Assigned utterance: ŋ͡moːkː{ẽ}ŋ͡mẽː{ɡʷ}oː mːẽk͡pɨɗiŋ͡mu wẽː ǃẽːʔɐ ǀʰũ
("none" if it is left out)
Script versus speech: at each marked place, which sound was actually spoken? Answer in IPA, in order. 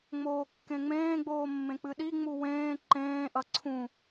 ẽ, ɡ͡b

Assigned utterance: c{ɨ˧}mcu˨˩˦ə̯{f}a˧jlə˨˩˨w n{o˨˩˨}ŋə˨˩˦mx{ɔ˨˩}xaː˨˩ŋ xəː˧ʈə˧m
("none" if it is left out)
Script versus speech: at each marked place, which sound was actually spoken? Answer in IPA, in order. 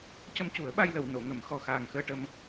ə˧, ɓ, o˨˩˨, ɔ˨˩

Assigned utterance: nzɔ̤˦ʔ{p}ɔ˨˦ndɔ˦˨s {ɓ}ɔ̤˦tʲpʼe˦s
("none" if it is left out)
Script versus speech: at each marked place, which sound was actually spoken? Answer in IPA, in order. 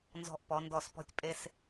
p, p

